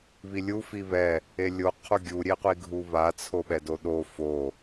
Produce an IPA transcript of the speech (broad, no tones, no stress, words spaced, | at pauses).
βilʲu fiβɛ | elʲo qʰuɡʲu ɾʲeqʷiɡʱuβa t͡sʰoɓɛdoɗo fo